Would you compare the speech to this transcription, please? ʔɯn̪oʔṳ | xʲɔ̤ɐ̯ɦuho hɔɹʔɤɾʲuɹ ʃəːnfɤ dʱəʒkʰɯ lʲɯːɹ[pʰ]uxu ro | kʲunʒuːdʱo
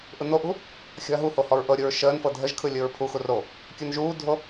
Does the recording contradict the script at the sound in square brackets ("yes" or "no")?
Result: no